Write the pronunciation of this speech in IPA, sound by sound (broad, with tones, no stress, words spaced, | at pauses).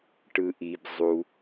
ʈɯ˩ʔi˩b zˤu˩